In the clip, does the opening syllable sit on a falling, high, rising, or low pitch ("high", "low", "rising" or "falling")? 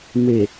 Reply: low